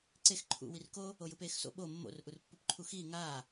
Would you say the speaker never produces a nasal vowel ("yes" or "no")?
yes